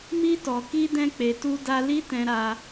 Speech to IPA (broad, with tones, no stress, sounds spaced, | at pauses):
m i˧ t ɔ˨ k i˧ d ɛ̃˧ k͡p e˨ t u˧ d a˧ l i˦ t ɛ̃˧ ɾ a˧